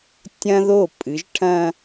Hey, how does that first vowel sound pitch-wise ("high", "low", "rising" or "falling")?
high